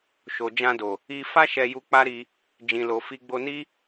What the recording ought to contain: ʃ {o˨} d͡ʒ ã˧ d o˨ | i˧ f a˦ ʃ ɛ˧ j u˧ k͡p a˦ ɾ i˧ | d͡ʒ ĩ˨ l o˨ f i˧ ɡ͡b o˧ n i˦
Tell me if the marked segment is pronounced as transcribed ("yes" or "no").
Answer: yes